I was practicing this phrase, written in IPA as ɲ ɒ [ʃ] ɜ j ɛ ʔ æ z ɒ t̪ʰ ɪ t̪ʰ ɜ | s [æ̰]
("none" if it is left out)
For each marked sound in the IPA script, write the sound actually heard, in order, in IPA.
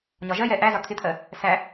ʒ, æ

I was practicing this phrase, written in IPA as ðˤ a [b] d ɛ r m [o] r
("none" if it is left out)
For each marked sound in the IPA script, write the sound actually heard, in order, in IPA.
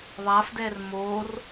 f, o

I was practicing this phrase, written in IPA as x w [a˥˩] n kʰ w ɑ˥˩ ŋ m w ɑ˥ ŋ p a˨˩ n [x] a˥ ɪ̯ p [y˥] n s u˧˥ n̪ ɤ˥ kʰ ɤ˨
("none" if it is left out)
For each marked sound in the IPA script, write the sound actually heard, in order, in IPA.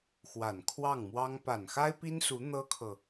a˨˩, x, i˥

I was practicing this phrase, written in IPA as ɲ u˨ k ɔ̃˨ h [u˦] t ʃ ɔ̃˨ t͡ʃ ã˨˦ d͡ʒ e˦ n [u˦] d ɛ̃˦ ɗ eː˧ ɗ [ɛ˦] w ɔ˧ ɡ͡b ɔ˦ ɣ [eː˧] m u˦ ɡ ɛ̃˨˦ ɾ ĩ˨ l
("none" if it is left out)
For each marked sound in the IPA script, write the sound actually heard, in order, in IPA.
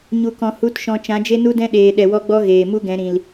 u˨˦, u˦, ɛ˨, eː˨

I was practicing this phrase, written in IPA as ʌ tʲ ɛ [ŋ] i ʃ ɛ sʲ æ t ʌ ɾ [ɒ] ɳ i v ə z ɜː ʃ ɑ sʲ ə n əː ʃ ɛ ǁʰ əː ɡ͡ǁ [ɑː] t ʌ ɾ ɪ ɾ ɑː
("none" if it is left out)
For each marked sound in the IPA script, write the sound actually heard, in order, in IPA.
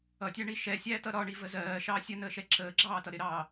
ɳ, ɒ, ɑː

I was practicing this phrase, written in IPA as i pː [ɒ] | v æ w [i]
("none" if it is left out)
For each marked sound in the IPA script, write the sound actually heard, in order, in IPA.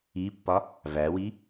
ɒ, i

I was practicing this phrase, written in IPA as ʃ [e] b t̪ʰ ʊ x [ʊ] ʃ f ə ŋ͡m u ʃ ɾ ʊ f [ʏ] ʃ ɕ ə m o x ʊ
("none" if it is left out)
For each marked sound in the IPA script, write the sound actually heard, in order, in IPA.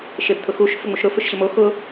e, u, ʏ

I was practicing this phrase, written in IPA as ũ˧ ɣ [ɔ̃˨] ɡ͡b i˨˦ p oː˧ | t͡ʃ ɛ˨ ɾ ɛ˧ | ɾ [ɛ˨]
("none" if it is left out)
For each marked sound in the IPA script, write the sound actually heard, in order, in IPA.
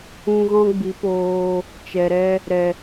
ɔ̃˦, ɛ˨

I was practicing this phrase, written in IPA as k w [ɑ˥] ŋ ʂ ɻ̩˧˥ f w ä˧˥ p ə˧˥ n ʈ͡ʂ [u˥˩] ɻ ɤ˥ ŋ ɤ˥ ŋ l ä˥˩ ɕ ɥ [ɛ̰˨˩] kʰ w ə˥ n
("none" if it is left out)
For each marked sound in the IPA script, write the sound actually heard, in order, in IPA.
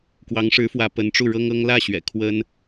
ɑ˧˥, u˥˩, ɛ̰˨˩

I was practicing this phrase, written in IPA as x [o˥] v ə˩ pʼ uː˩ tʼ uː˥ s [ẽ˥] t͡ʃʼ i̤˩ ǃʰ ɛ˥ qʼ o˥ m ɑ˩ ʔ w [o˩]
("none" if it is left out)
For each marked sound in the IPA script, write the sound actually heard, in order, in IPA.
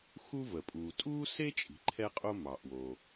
u˥, e˥, o˩

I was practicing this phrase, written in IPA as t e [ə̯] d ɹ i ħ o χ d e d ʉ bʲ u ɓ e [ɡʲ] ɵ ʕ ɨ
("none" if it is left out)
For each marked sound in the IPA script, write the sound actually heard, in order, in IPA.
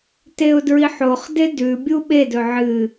ʊ̯, d

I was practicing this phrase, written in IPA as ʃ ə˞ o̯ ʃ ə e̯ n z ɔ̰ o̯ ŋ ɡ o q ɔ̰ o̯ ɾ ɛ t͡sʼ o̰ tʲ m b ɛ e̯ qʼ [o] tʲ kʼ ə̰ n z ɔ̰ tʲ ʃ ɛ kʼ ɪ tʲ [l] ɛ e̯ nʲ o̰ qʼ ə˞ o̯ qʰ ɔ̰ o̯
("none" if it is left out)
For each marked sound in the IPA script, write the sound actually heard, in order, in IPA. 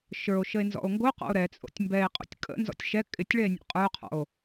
o̰, ɭ

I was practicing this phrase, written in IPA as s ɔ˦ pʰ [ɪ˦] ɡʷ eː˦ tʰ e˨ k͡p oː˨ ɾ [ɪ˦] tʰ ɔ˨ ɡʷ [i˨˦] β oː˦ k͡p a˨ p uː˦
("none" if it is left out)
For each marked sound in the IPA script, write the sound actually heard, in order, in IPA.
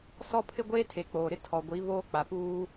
ɪ˦, ɪ˦, i˨˦

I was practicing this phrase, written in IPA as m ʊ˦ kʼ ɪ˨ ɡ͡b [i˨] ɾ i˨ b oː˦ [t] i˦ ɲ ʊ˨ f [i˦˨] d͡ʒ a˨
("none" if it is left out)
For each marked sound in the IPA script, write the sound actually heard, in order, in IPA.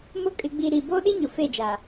i˨, ɗ, e˦˨

